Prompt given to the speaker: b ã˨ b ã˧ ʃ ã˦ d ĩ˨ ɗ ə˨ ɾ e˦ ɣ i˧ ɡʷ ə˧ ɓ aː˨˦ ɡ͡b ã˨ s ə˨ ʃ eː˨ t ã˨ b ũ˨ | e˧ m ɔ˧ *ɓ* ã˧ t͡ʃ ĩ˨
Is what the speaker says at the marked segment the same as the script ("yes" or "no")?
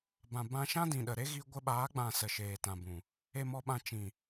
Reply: yes